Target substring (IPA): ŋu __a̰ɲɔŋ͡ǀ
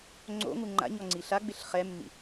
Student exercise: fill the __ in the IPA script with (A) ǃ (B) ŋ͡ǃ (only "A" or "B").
B